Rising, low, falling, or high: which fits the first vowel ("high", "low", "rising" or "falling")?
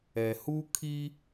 low